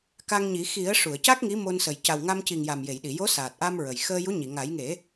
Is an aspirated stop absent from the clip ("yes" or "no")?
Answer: yes